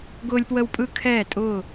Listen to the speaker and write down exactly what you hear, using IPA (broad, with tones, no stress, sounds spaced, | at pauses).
ɡ ʊː˧ lʲ p w ə˧ w pʼ ɯ˧ kʰ ɛː˧˩ tʼ ʊː˧˩